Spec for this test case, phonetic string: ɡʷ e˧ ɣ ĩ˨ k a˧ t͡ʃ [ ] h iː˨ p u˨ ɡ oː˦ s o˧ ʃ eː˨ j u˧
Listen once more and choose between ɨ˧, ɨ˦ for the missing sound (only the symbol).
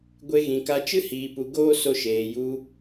ɨ˦